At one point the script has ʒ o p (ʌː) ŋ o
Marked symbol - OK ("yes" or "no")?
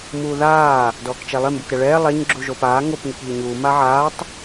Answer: no